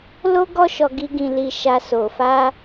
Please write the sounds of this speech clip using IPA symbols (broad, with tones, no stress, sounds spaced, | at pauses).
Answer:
l o˦ ɡ ɔ˦ ʃ ɔ˧ ɡ i˧ ɡ ĩ˨ l i˨ ʃ a˧ s o˨ f a˧